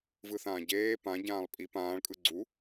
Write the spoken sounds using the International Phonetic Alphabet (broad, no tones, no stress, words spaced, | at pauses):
vɯθãːɟeː pã ɟãːlˠpʼi pãːɭ kʼɯɡ͡ǀu